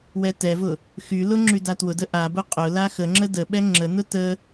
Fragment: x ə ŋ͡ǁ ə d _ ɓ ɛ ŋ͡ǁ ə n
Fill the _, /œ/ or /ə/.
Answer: ə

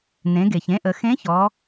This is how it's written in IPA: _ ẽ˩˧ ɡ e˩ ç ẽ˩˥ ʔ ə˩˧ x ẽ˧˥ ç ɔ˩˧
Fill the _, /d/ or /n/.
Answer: n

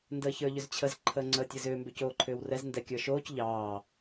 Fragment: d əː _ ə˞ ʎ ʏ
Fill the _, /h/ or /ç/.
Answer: ç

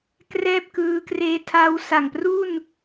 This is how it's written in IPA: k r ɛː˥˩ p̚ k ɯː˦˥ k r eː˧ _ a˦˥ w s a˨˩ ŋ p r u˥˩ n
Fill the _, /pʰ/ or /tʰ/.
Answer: tʰ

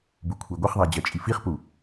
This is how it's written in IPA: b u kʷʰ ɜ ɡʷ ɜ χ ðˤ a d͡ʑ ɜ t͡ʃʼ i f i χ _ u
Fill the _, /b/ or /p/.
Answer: p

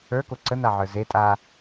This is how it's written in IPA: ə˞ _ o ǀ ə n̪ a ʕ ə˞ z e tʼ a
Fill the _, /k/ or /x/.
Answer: k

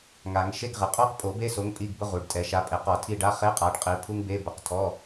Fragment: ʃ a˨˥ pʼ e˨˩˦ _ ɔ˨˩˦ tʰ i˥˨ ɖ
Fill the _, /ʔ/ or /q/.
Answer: q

